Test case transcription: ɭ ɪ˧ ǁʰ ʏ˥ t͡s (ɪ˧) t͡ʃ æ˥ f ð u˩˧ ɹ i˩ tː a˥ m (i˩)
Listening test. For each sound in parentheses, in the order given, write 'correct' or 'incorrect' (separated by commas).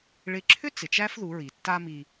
incorrect, incorrect